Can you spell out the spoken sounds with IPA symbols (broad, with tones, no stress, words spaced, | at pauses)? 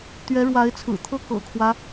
t̪ɥɛ˧˥ɻwa˧˥ɪ̯t͡sʰɹ̩˨˩t̪ʰɤ˥˩ kɤ̰˨˩kʰwä˦